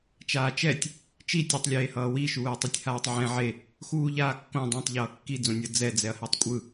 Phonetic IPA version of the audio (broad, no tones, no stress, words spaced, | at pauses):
t͡ʃaːt͡ʃɛtʲ | t͡ʃi tʲɯtˤ lʲeːhʌːwi ʃuːɐ̯tˤɯtʲhaːtˤʕɛ̃ ʕe | xuːʎaːkːõ dˤɛ̃tˤ ʎʌːkːi d͡zõnʲʌ d͡zɛ d͡zɛɐ̯hɛtˤkʷʼɯ